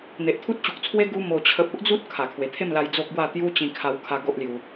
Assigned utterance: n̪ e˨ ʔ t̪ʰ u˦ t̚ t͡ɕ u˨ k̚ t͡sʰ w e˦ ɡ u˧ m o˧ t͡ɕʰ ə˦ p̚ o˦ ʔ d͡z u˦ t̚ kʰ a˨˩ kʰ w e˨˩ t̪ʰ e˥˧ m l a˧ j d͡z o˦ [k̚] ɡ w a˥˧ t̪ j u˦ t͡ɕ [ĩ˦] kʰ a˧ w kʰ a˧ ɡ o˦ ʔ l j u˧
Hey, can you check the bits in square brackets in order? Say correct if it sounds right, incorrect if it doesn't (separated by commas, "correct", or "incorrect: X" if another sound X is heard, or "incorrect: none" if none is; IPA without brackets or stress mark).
correct, incorrect: ĩ˧